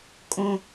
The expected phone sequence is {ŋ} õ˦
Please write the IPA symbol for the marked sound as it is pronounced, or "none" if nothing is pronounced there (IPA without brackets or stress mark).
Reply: kʼ